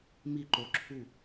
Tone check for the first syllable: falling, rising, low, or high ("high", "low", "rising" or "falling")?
falling